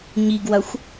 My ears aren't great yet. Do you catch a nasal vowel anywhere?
no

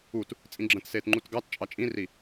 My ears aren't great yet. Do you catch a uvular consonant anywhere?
no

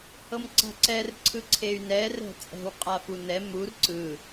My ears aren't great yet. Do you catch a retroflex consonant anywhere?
no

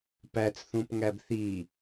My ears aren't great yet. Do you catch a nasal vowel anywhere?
yes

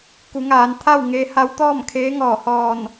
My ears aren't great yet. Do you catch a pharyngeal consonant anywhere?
no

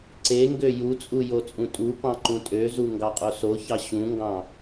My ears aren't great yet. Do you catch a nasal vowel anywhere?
yes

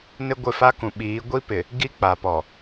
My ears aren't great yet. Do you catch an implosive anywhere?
yes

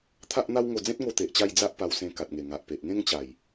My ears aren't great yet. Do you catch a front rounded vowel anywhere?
no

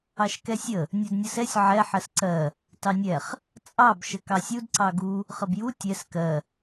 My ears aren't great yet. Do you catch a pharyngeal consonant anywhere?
yes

